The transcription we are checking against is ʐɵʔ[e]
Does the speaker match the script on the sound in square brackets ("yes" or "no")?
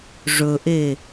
yes